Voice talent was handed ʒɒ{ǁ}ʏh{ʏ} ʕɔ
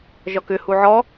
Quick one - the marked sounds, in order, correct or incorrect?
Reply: incorrect: k, incorrect: u

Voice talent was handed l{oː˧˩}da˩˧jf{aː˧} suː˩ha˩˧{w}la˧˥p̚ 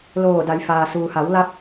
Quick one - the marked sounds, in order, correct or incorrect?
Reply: correct, incorrect: aː˩, correct

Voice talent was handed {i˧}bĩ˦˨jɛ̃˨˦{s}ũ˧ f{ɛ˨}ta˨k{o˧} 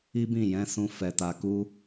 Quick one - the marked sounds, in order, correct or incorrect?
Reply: incorrect: i˦, correct, correct, incorrect: u˧

